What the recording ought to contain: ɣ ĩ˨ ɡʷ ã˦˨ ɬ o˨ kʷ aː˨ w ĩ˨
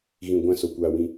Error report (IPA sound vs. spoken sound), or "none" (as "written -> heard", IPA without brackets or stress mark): ɬ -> s